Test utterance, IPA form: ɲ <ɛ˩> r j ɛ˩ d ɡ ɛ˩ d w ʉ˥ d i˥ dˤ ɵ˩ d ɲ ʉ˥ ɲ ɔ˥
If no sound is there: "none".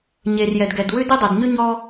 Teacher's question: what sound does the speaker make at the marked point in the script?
e˩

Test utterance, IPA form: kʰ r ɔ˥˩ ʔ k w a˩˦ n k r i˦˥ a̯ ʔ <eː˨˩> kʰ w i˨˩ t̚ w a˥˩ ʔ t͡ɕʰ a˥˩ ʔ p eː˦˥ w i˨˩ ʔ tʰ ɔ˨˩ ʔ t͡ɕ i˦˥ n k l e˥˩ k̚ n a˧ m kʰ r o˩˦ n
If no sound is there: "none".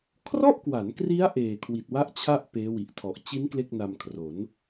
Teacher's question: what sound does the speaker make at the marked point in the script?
eː˨˩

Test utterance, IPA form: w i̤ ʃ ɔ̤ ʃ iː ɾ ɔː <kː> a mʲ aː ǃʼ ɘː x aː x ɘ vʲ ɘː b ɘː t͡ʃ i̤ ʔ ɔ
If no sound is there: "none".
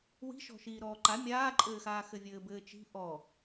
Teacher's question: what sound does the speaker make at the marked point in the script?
ǃ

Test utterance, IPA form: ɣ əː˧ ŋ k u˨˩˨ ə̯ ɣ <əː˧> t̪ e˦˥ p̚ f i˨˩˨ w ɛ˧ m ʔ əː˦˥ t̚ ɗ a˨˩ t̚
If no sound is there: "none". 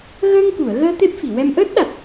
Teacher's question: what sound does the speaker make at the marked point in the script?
əː˧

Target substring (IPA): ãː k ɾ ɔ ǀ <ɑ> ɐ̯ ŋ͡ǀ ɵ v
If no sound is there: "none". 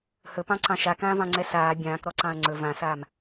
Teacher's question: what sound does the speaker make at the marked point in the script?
ɑ̃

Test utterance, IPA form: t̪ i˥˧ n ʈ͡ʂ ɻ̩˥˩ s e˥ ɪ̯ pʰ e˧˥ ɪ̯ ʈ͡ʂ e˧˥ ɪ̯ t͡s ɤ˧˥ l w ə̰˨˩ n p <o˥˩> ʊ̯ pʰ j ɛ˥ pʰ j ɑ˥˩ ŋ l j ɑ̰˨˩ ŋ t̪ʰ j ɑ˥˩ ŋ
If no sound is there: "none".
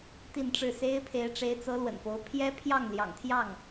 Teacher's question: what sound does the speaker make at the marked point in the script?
o˧˥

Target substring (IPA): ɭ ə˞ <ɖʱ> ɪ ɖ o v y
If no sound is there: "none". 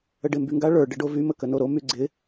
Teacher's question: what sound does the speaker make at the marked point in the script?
ɖ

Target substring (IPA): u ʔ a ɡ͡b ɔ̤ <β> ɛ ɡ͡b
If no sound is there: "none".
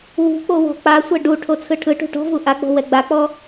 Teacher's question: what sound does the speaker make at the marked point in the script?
w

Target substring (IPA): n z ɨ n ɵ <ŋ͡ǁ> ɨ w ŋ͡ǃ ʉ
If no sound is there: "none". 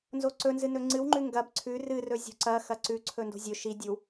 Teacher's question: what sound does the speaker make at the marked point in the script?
ŋ͡ǀ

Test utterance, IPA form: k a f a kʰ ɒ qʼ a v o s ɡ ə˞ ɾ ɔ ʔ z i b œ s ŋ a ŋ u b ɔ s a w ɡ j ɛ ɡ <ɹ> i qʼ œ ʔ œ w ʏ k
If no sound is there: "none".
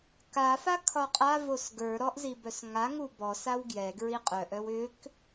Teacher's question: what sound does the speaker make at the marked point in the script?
ɹ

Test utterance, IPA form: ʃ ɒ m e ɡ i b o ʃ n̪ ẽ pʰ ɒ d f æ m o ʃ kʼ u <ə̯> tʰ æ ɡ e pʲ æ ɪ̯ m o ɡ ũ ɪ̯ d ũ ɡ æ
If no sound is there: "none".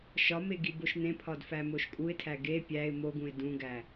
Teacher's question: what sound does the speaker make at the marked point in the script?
ɪ̯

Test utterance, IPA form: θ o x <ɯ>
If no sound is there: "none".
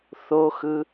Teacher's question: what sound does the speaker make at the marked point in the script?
ɯ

